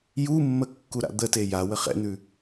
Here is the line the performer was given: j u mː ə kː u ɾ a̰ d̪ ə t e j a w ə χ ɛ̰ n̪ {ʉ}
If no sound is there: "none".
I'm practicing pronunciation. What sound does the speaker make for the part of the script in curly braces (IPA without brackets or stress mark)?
ʉ